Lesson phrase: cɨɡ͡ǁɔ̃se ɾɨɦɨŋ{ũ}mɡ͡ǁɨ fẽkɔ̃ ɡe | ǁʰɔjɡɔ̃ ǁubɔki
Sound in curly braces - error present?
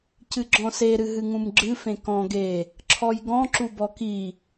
no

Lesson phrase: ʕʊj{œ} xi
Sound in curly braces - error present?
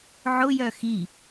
no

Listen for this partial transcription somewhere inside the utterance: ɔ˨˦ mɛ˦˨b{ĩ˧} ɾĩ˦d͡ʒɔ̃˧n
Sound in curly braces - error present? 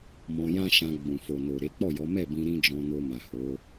no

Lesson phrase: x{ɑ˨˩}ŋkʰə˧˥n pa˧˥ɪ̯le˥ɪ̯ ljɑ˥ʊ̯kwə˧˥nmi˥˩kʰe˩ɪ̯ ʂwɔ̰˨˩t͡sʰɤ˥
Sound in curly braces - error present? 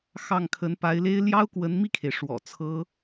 yes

